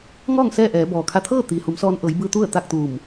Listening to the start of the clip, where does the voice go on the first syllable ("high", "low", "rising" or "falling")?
falling